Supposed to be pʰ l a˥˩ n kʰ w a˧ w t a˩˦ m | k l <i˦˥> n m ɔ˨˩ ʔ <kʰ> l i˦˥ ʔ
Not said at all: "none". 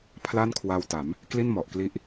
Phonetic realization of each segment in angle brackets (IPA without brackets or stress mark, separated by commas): i˥˩, k